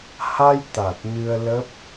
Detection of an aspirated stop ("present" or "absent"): absent